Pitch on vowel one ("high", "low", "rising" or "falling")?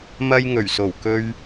high